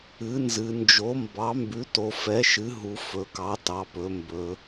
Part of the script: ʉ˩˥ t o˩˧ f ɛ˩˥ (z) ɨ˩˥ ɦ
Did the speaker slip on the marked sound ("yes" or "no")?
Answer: yes